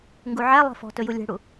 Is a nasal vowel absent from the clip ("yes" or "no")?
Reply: yes